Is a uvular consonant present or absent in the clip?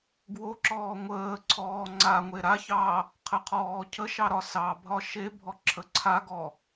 present